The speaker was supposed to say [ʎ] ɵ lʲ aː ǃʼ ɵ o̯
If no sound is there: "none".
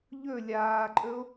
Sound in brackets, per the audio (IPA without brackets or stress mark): ʎ